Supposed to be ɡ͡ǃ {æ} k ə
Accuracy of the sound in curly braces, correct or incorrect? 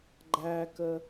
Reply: correct